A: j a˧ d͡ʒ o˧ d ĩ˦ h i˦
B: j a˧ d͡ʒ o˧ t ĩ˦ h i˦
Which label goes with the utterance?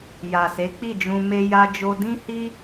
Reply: A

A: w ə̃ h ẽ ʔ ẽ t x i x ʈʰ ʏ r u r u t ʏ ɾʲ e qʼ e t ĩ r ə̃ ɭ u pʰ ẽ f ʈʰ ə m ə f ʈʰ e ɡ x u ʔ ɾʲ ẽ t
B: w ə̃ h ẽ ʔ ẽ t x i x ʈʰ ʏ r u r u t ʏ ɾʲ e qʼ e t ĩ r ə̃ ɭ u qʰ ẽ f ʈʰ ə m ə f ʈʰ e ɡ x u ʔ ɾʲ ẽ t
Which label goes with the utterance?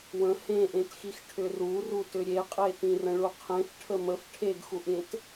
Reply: B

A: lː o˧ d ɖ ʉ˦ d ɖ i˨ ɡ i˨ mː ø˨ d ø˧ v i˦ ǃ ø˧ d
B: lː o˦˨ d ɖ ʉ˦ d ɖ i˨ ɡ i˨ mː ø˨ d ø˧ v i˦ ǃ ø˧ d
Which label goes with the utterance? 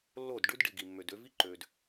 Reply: B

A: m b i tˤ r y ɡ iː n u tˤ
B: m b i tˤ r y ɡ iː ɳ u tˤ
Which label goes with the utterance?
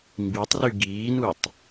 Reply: A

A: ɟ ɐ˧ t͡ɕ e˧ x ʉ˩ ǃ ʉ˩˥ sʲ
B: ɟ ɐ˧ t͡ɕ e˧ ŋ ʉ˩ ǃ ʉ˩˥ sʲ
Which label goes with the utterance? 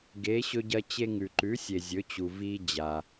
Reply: B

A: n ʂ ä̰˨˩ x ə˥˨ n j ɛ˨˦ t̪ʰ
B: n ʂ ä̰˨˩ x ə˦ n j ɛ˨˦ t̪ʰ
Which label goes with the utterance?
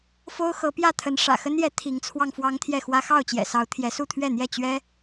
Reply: B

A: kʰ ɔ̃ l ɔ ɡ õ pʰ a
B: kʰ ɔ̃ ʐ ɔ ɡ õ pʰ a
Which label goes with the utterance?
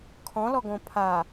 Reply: A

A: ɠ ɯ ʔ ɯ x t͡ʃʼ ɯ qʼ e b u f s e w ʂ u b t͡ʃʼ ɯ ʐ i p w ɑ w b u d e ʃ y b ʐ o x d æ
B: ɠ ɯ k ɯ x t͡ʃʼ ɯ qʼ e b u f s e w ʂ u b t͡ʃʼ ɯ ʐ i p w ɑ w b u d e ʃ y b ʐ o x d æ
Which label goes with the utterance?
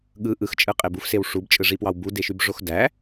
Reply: A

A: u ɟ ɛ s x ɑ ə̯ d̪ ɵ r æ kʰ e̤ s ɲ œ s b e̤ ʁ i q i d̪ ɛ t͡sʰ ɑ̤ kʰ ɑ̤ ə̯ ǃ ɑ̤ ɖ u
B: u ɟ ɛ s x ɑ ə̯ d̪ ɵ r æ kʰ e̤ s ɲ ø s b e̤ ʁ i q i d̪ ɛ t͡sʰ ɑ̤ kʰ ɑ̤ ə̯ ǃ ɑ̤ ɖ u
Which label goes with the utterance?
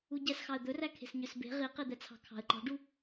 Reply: B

